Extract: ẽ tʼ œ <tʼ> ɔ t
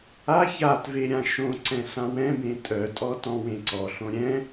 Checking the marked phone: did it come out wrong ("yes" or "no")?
no